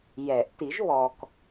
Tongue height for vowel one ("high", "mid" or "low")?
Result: mid